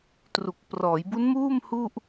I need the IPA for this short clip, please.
tru˨˩k̚ prɔː˩˦jbu˦˥nmuː˥˩m hu˥˩ʔ

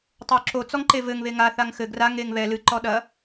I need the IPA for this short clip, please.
tˤoǁo t͡sɔŋǃevɘŋ βeŋa θaŋxɘ ɡra ŋeŋβɛ lɨ ǃɔɗɐ

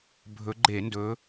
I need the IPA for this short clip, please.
bʱɵ˨˦ɡ͡ǃe˧˩˧ndɵ˨˦

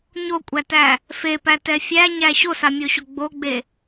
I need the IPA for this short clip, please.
ɲokʷʼætæ | fepætɛ fʲæɲæ ɕosamʲoɕo ɡ͡boɡ͡be

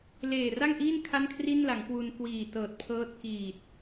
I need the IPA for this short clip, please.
leː˨˩ra˥˩ŋʔiː˥˩n kʰa˥˩nkʰri˥˩nla˩˦ŋkwu˧n kwiː˨˩ tɤː˨˩t̚pʰɤː˦˥t̚ kiː˨˩t̚

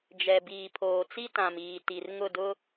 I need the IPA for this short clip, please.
d͡ʒɛ˨ biː˨pʰoː˨t͡si˦ tã˨miː˨ ti˨r ŋʊ˦˨dʊ˦

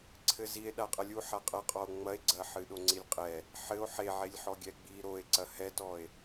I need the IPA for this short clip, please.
ǀʰɘzie̯ ɗaqʼɐlʲu ħaqʼɐqʼɔo̯ ŋ͡mɐe̯ɡ͡ǀɐ ħɨɗoŋ͡ǀilʲqʼɛ | ħɘo̯ ħeʕelʲħɔ ɡʲɛɡ͡bi ɾoe̯ǀɐ hɛtɔe̯

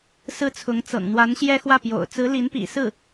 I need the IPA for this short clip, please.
sɹ̩˥t͡sʰʊ˧˥ŋt͡sɤ̰˨˩ŋ n̪wa˧˥n ɕjɛ˥xwä˥˩pjo̰˨˩ʊ̯ t͡sɹ̩˧˥li˧˥npḭ˨˩ sɹ̩˥˩

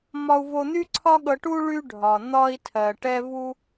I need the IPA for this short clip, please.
mɒ˧u̯vo˧n̪y˥ǀʰɒ˥ ɠɤ˧ʈu˥ ɭy˧ɖʱɒ˩ n̪ɒ˧i̯tʰɜ˩ ʈɛ˧vu˧

